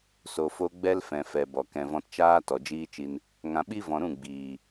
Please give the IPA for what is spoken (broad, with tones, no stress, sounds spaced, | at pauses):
s o˨ f o˧ ɡ͡b ɛ˦ l f ɛ̃˨ f ɛ˨ b ɔ˨ k ɛ̃˨ v ɔ̃˧ t t͡ʃ aː˦ t ɔ˨ d͡ʒ iː˦ t͡ʃ i˧ n | ŋ ã˨ ɓ i˦ v ɔ̃˨ ɾ ũ˦˨ ɡ͡b iː˨